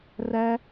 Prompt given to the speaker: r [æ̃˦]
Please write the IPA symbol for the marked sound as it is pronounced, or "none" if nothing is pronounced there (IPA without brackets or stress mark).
æ˦